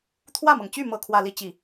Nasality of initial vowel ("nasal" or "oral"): oral